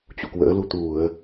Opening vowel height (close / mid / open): close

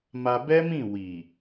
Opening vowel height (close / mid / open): open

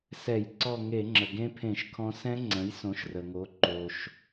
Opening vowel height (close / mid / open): mid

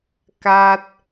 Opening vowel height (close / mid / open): open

